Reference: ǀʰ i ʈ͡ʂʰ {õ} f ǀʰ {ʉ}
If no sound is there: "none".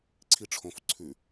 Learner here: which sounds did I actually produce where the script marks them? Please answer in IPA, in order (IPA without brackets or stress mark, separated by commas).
õ, ʉ